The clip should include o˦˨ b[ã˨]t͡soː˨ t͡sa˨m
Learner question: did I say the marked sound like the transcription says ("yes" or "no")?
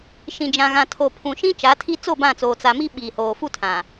no